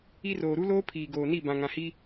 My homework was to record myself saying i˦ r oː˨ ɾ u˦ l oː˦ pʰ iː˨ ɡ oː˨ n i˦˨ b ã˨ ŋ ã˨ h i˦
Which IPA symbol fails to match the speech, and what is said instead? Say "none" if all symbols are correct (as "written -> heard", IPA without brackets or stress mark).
none